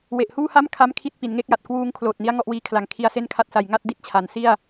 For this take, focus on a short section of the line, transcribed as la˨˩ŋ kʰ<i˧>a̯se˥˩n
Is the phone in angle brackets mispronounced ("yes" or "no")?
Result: no